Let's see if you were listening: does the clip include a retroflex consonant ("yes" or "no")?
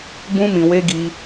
no